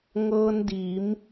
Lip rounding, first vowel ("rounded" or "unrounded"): unrounded